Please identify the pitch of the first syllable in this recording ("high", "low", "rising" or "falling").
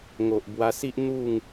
low